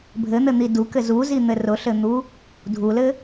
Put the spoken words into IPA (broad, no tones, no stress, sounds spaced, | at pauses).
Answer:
bʱ ɘ n̪ ɘ n̪ i d u k ɘ z u z i n̪ ɘ r ʊ ɬ ɘ n̪ u | dʱ u l ɘ